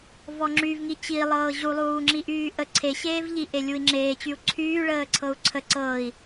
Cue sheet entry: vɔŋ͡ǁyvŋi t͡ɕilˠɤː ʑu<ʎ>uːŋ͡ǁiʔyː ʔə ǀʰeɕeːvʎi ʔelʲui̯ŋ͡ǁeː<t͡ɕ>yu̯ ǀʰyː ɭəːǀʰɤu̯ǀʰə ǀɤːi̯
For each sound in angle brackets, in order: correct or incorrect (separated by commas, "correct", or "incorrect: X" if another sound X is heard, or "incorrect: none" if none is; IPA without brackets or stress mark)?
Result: incorrect: lˠ, correct